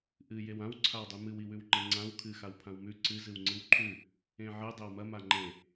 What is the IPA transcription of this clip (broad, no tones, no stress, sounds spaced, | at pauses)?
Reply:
ʔ ɨ j e w ã w ǀʰ a w dˤ ʉ m ɨ w i w ʉ w ŋ͡ǃ e ŋ͡ǀ ã w kʰ ɨ x a w pʰ ã w m ʉ ǀ ɨ z ɨ w ŋ͡ǀ ɨ w ǃʰ ʉ | ẽ ʕ ɨ dˤ e w m ɐ m a ŋ͡ǃ ẽ